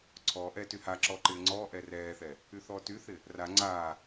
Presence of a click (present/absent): present